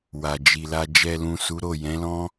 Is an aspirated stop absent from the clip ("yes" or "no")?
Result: yes